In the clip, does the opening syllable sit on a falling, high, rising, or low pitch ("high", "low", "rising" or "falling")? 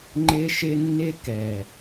high